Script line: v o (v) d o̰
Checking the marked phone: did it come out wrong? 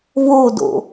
yes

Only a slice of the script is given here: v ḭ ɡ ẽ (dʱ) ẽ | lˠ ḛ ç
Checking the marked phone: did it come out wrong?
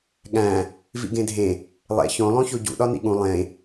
no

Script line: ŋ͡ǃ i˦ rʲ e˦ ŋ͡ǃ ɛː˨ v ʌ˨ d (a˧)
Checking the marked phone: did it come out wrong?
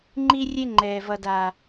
yes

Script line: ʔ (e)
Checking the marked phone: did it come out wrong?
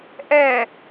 yes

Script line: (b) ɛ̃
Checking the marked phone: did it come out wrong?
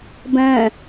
no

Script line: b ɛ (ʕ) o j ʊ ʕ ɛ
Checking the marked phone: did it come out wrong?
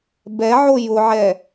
no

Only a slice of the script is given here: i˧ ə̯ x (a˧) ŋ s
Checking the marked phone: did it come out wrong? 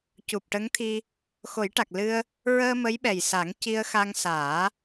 no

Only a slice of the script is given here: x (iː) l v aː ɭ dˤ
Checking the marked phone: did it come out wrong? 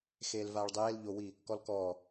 yes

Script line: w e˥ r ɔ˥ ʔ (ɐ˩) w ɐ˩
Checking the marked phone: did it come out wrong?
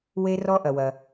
no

